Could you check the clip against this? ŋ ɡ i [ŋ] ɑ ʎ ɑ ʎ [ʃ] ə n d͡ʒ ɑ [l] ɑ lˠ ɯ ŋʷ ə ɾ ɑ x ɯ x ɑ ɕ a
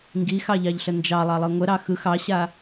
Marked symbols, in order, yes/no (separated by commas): no, no, no